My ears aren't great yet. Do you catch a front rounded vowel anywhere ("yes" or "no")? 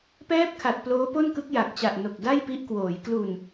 no